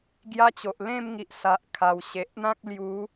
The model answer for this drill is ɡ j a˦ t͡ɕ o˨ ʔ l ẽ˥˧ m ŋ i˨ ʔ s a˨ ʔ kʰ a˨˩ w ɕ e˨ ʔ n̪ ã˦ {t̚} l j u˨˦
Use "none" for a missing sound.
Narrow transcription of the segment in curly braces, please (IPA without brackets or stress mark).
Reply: k̚